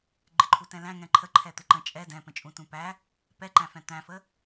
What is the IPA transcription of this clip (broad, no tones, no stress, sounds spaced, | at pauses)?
ɡ͡ǃ ɪ ǃʰ u t ɛ̃ l æ̃ ŋ ɛ̃ ǃʰ ə ǃʰ ɛ t̪ ɪ ǃ ə̃ t͡ʃʼ ɛ d ɛ̃ p ə̃ t͡ʃʼ ũ t ũ p æ | p ɛ ǃ æ̃ f ɛ̃ t̪ æ̃ f ə